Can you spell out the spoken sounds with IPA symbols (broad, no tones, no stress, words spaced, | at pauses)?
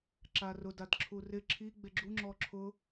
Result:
ǁarʊ dadǁʰurɪ ǁʰi ɡ͡beɡ͡ǁu ŋ͡ǁɔǁʰʊ